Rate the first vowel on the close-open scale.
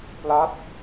open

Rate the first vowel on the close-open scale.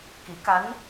close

